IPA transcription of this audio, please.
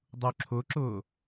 dˤ u ǁʰ ʊ ǁ ʊː

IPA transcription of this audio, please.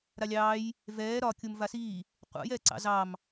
ɾ a lʲ ɑː j | v ɛː ɾ ɒ kʲ u m v a s iː | qʷ a̰ j ɛː ǀ ɑ̰ z ɑ m

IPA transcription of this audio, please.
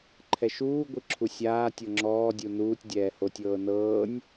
ǃʰ ɛ ʃ uː ɡʷ ɯ ǁʰ u sʲ aː tʲ ɤ ŋ͡ǁ ɔː dʲ u n uː tʲ dʲ ɛː h o tʲ ɤː n ɤː nʲ

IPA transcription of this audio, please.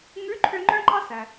ŋ ʉ˧˥ ǃʰ ø˧ ŋ͡ǃ œ̃˥ ŋ͡ǃ ɑ˥ s æ˩

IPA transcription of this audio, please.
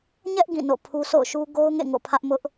ɲ ɛ˦ ʔ ɡ ĩ˦˨ n o̰˦˨ pʰ u˦ s o̰˦˨ ʊ̯ ʃ u˦ ɡ o˦ ʊ̯ ŋ ḛ˦˨ ŋ o̰˦˨ pʰ ä˦ ʔ m ʊ˦ ʔ

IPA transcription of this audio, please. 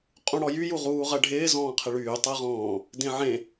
qʼ ũ ɽ ɔ j y j u ʁ uː ʁ ɜ ɖʱ ɪː z ɔ̃ː qʰ ɪ ɭ yː tˤ ɜ ʁ ɔ̃ː | d ẽ ʕ ẽ

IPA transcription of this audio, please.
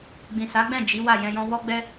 ɡ͡b ĩ˨ s a˨˦ ɡ͡b ɛ̃˦˨ d͡ʒ i˨˦ w a˦˨ j ɛ̃˧ j ɔ̃˦ w ɔ˦ ɡ͡b ɛ˦

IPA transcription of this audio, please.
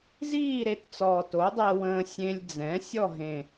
z iː˥˨ ɾ e˩˥ t t͡s ɔː˨˩ t o˩˥ dˤ e˧ w ə̃ː˧ sʲ ẽ˧ lʲ d͡z ɛ̃˩˥ sʲ ɔ˥˨ ɦ ẽ˨˩

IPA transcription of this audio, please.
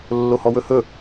lː o h ɔ w ɵ h ɵ

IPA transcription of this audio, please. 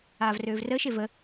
aː v r øː v r əː ʃ e v ə

